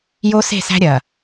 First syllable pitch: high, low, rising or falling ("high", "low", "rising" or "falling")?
high